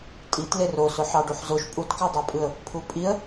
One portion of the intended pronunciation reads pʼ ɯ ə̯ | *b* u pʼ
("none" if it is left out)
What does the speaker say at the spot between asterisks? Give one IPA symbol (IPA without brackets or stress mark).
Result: pʰ